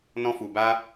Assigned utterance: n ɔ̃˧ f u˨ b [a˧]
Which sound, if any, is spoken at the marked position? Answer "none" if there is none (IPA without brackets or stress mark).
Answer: a˧